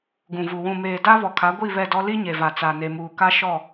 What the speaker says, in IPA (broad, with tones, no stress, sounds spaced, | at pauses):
ɡ ũ˨ v u˨ w ũ˨ m eː˨ d a˦ β ɔ˨ kʰ a˨˦ ɡʷ i˦˨ β ɛ˦˨ d ɔ˦ l i˦ ɲ e˨ v a˨ t͡s a˨ n e˨ m uː˨ k a˦ ʃ ɔ˦˨